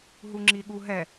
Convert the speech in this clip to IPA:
ɦ u ŋ͡ǁ i ɠ u ɦ ɛ

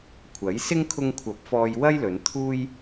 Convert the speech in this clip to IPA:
kʷʰ ɐ˨˥ j s ɪ˥ ŋ kʰ ʊ˧ ŋ kʷʰ ɐ˨˥ p̚ f ɔː˧ j w ɐ˥ j l ɵ˨˧ n t̪ʰ uː˥ j

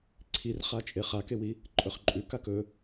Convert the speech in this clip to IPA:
ǀʰ i r χ a t͡ʃʼ e χ a k e w i | ǃʼ ɵ χ ǃʼ ʉ k a k ɵ

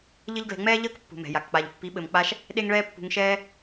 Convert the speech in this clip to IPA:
ʎ ɘ˦ ʎ ɡ l ɛ̤˧ ŋ͡m ɛː˦ ʎ əː˦ k pː ṳ˨ m ɛ̤˨ j a˨ k k͡p a˨ ʎ pː i˨˦ ɓ ɘ˨ m k͡p a˧ ʃ | ɗ e˦ ŋ ɭ ɛː˦ pː ṳ˧ ŋ ʃ ɛː˦

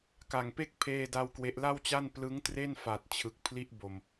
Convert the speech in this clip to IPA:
k a˨˩ ŋ p e˥˩ k̚ pʰ eː˥˩ d a˥˩ w k w e˦˥ ʔ l a˥˩ w t͡ɕ a˥˩ n p l ɯ˦˥ ŋ t r e˥˩ n f a˨˩ t̚ t͡ɕʰ ɯ˨˩ k̚ pʰ l i˦˥ ʔ b o˨˩ m

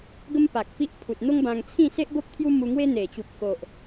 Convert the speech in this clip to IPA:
ɡ ə˦ m p a˨ k̚ p i˦ ʔ pʰ u˨ t̚ n̪ o˦ ŋ b ã˧ ŋ t͡sʰ ĩ˥˧ s e˦ ʔ b o˦ p̚ t̪ʰ j u˦ m u˧ ŋ w e˦ n̪ e˨˩ t͡ɕ u˨ p̚ k o˨ ʔ

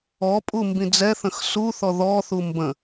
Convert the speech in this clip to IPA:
ɔ pʼ u m b ĩ d͡z ɛ θ ə̃ x s u θ ɔ ð ɔ θ u m b ə̃

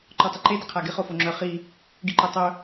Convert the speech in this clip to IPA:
ǃ ɔ tˤ ɪ ǃ e d ɪ qʰ a ɡ ɪ χ o f o ŋ͡ǁ œ χ i | ɡ i ǃ o tˤ œ

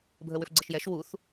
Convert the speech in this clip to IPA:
bʱ ə w ʏ f ɡ͡ǀ ə ʃ j ɛ ʃ w u θ

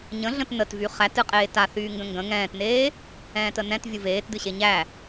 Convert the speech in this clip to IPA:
ɲ ə̃ ɮ ə̃ t n ə t v y χ æ t ɨ qʼ eː t a θ yː ŋ ɡ ə̃ ŋ ɡ ə̃ ŋ ɛ̃ː t n eː | ɛ̃ː t ə n ɛ̃ t vʲ ɨ v eː t d ɨ ɕ e ɲ æ

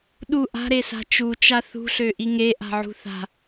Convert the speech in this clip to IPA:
ɗ u ʔ a̤ ɾ e s a̤ t͡ʃ u t͡ʃ a θ ṳ ɬ ø ʔ i ŋ e ʔ a̤ ʕ ṳ θ a̤

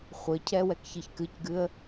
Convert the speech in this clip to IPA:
χʷ ɘ cʰ ɛ w ɛ k ç ɨ ç k ɨ c ɡ ɨ ə̯

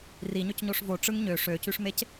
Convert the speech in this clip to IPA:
r i ɲ ø c ɲ o ʂ v o ʈ͡ʂ ɯ ŋ ɲ ø ʂ ø c y ʂ m e c

